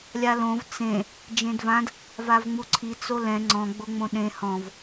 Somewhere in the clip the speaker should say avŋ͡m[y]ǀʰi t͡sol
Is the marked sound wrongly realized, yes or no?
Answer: yes